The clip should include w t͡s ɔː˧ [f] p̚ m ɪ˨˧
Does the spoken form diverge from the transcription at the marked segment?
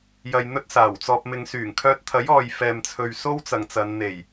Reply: yes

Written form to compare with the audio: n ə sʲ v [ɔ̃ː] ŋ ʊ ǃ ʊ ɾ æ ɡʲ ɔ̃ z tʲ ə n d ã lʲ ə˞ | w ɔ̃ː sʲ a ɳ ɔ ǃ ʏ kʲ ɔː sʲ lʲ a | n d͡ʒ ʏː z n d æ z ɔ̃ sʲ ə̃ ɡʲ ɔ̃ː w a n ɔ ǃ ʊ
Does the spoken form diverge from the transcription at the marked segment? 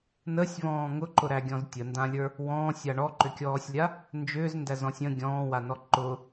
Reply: no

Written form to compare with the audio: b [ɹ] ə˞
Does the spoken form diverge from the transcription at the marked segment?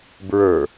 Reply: no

